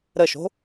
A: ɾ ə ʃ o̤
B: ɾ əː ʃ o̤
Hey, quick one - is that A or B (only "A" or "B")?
A